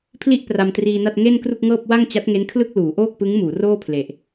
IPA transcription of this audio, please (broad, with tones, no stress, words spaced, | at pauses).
pʰli˥˩ʔ pra˧mtriː˧na˥˩t̚ ŋe˥˩nkru˥˩k̚ŋɤː˥˩p̚ wa˥˩ŋt͡ɕa˦˥t̚ŋe˦˥nkʰlɯ˥˩k̚ luː˩˦ʔoː˥˩k̚pɯ˦˥ŋ muː˩˦roː˥˩pʰle˨˩ʔ